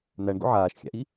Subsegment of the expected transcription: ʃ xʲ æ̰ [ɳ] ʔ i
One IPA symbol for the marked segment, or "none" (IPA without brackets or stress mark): none